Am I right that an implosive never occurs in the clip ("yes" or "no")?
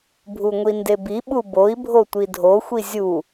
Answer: no